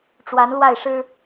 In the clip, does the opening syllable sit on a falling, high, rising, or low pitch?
rising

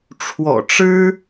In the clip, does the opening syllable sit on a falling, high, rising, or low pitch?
low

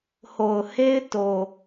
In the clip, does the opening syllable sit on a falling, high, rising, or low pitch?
low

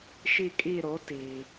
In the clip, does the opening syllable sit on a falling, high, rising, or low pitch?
falling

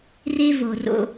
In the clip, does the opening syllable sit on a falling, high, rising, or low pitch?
high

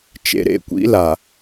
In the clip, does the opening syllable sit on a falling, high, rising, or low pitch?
low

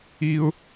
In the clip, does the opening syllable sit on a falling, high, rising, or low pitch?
high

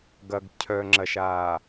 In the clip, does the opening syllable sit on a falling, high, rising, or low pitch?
low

